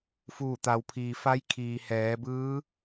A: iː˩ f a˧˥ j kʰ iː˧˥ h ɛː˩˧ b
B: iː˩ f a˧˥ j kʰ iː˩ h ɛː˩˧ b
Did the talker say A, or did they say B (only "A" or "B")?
B